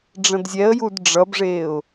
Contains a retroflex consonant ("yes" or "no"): yes